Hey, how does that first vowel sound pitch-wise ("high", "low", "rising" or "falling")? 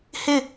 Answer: falling